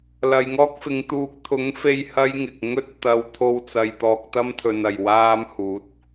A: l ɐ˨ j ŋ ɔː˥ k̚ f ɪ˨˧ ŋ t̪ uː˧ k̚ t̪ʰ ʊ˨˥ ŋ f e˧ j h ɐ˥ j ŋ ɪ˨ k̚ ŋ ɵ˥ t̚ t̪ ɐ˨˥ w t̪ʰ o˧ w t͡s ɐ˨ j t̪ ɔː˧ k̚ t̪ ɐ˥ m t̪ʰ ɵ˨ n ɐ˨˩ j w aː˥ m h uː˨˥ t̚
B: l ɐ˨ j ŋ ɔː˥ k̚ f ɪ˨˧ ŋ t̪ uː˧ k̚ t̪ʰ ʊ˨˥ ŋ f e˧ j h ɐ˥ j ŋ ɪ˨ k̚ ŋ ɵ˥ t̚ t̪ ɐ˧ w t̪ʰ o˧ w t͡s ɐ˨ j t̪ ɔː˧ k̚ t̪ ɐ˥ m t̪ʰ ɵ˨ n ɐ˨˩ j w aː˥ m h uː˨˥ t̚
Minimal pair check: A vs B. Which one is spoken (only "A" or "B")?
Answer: B